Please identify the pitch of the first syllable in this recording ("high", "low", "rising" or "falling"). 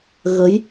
rising